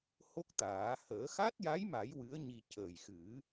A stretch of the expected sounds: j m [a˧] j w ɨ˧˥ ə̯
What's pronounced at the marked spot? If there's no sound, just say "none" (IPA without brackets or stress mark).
a˨˩˦